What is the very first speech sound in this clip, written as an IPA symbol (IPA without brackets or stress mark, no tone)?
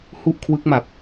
h